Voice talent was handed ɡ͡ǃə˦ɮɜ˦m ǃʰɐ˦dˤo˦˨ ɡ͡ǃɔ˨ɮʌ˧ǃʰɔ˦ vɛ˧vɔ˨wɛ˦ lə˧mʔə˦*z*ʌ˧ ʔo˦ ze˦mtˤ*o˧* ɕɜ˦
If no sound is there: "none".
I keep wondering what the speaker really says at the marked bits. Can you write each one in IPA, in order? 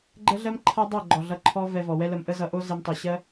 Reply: z, o˧

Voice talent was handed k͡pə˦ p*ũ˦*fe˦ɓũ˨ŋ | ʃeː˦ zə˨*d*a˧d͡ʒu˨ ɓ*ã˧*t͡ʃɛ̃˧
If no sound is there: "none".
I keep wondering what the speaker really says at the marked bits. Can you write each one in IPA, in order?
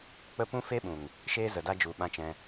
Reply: ũ˦, d, ã˦

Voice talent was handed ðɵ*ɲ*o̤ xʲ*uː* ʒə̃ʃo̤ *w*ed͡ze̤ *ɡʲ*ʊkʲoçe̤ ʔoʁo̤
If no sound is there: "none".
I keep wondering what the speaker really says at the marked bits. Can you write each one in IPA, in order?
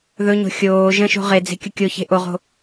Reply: ɲ, oː, ʁ, kʲ

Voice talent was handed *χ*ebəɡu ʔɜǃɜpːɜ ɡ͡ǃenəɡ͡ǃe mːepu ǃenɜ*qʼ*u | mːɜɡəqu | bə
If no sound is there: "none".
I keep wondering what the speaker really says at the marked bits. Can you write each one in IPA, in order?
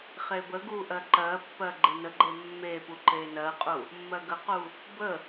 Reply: χ, qʼ

